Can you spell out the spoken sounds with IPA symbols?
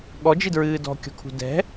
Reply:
ɠ ɔ d͡ʒ i d ɹ ɨː d ɔ̤ kʲ ɔ̤ kʰ ṳ d ɛ̤

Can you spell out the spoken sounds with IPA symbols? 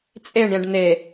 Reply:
t͡sʼ e ɳ ɾʲ ɛ̃ ɖ n̪ e

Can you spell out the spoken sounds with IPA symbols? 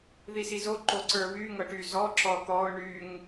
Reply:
ð i s i z o ǃ o ǀ ə˞ β y ŋ ɤ ʈ y z ɔ ǁ ɔ t̪ ɔ ʊ̯ ɳ y ŋ

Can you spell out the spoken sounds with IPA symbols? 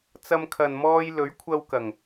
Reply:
t͡s ɐ˧ m kʰ ɐ˨ n m ɔː˧ j l ɵ˨˥ ɥ kʷʰ ɐ˧ w k ɐ˨˩ ŋ

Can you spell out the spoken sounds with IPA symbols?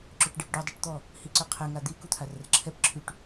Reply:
ǁ ø ʈ ɖ e p ɖ u dˤ i ʈ t̪ ɔ | h i ǀ ø qʰ ɛ ŋ a d̪ i k u t̪ʰ a r ə r ǁʰ ɛ p ǁʰ y ʈ

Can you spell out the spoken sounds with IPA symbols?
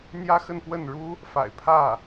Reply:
n̪ j ä˥ x ə˥˧ n p w ə˥˩ n ɻ u˥ | f a̰˨˩ ɪ̯ pʰ ä˥˩

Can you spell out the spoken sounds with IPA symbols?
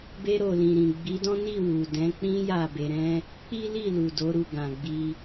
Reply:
b e˧ ɾ o˨ l ĩ˨ ɾ ĩ˨ ɡ͡b i˨˦ d ɔ̃˦ n i˦˨ w u˨ d ɛ̃˨˦ k͡p ĩ˦ j a˦˨ b e˧ ɾ ɛ̃˦ | k͡p i˦ l i˦˨ l u˨ d o˨˦ ɾ u˦˨ ɡ ã˨ ɡ͡b i˧

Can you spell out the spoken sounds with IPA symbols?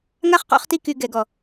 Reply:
ŋ a˥ χ q ɔ̰˦ χ t i˦ k y˨ ɡ ɛ˨ ɡ ɔ˩

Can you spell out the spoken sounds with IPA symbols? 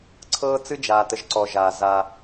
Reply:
ǀʰ ɤː˦ t͡s ɨ˦ d͡ʒ aː˧ t ə˧ ʒ ǀ ɔ˧ ʒ aː˧ z a˧

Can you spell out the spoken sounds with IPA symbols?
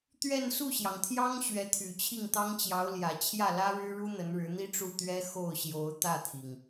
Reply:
t̪ ɥ ɛ˥˧ n s u˥˩ ɕ j ɑ˩ ŋ t̪ʰ j ɑ˥ ŋ ɕ ɥ ɛ˧˥ t̪ʰ y˨˩ t͡ɕʰ i˥˩ ŋ t̪ ɑ˥ ŋ t͡ɕ j ɑ˧˥ ʊ̯ l j ä˨˩ t͡ɕʰ j ä˥˩ l ä˥ ɻ ɻ̩˥ ɻ u˥ n̪ ə˧˥ n ɻ ɻ̩˧˥ n̪ i˥ ʈ͡ʂ u˥˩ t̪ ɥ ɛ˥ x o˥˩ ʊ̯ ɕ j o˧˥ ʊ̯ t̪ ä˥˩ t̪ʰ i˩ ŋ

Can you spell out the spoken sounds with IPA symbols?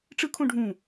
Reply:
ʈ͡ʂ ɯ kʰ õ ɖʱ ũ

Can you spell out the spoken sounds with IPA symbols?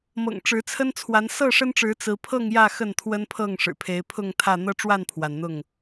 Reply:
m ɤ̰˨˩ ŋ ʈ͡ʂ ɻ̩˨˦ t͡sʰ ə˦ n t͡sʰ w a˨˦ n s ɤ˥˨ ʂ ə˦ n ʈ͡ʂ ɻ̩˨˦ t͡s ɹ̩˨˦ pʰ ɤ˥˨ ŋ j ä˥˨ x ə˥˨ n t̪ʰ w ə˦ n pʰ ɤ˥˨ ŋ ʂ ɻ̩˨˩ pʰ e˨˦ ɪ̯ pʰ ʊ˥˨ ŋ t̪ʰ ä˥˨ n̪ ɤ˦ ʈ͡ʂ w a˥˨ n pʰ w a˩ n n̪ ʊ˥˨ ŋ

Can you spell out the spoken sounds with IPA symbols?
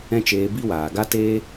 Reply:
ɛ̃˦ t͡ʃ eː˧ b i˦ w aː˨ ɡ a˦ t eː˦

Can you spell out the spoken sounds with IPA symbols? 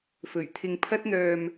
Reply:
f ɵ˨˩ ɥ t̪ʰ ɪ˧ ŋ pʰ ɐ˥ t̚ n̪ œː˧ m

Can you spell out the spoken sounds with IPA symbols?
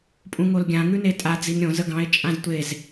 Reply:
pʼ ũ ŋ o l ɡʲ ã ŋ ʉ n e tʼ a d͡z i n ɾʲ õ z ə ɡ ɑ̃ e̯ t͡ʃʼ ã z tʷ e z

